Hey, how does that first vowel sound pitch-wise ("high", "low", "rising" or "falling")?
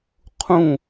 falling